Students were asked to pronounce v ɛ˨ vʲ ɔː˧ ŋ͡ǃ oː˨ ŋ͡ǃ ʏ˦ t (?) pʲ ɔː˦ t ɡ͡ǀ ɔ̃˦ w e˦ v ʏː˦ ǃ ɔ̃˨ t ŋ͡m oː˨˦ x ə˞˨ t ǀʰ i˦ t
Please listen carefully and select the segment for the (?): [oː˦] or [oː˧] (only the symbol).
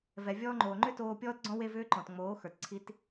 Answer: oː˧